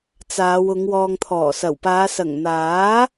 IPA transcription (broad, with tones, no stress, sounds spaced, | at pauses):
t͡s aː˨˧ w ʊ˨˧ ŋ w ɔː˨ ŋ t̪ʰ ɔː˨˩ s ɐ˨˩ w p aː˨˧ s ɐ˨˩ ŋ n̪ aː˨˥